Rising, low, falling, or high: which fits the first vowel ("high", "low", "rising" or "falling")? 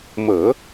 low